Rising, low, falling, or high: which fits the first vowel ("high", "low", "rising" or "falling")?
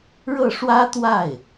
falling